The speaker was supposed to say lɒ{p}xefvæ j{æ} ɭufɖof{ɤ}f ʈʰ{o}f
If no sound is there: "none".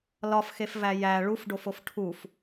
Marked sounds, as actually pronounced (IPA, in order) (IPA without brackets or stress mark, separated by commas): f, æ, o, u